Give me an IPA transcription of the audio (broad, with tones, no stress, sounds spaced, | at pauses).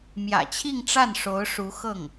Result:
m j ä̰˨˩ t͡ɕʰ i˥˧ ŋ ʈ͡ʂ a˥˩ n ʂ o˧˥ ʊ̯ ʂ u˧˥ x ɤ˥˩ ŋ